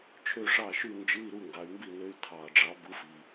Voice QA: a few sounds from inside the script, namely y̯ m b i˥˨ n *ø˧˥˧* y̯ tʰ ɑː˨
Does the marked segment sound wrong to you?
no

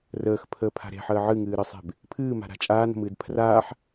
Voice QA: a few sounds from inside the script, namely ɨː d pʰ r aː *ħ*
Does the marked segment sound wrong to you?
no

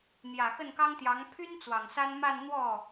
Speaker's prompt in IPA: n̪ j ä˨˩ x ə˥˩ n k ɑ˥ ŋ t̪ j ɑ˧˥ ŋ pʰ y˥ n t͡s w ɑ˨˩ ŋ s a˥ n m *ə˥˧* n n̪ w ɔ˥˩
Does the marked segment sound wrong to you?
yes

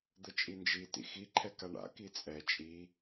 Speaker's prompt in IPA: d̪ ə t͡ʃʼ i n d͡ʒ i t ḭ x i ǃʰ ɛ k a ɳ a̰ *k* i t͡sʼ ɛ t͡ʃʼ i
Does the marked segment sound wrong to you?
no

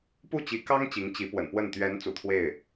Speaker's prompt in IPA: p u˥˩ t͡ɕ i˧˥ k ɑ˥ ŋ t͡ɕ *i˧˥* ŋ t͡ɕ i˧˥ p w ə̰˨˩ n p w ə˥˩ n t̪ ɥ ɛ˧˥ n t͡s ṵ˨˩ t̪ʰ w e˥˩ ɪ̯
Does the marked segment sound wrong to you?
no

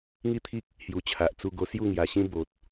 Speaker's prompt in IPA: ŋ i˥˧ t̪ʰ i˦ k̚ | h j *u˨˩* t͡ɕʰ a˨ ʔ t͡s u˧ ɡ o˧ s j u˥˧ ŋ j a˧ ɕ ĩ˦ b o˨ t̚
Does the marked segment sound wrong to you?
no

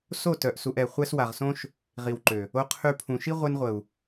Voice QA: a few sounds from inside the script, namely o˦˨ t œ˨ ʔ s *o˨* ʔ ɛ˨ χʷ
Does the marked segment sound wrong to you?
yes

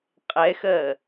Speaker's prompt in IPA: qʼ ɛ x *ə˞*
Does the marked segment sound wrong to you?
yes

